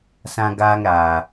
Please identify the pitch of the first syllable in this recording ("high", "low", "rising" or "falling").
high